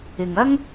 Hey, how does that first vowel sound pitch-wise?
low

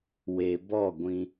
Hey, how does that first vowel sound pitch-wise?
low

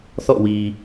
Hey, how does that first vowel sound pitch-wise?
falling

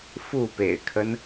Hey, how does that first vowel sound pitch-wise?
falling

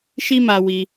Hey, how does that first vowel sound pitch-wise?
high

